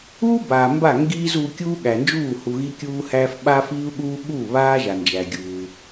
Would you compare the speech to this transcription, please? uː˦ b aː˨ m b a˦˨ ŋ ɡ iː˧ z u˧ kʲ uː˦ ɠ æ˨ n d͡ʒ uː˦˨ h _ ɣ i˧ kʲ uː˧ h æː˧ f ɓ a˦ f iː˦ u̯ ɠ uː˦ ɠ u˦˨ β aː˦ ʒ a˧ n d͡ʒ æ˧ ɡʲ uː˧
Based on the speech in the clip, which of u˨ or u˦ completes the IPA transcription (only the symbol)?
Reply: u˨